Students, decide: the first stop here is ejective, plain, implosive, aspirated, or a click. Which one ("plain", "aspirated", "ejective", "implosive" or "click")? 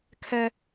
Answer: aspirated